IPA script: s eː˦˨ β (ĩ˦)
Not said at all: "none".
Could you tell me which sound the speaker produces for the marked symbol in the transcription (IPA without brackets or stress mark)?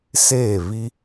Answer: i˦